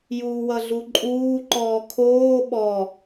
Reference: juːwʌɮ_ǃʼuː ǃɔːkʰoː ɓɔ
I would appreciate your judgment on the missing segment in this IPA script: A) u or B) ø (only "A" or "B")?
A